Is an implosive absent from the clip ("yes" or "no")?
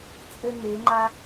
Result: yes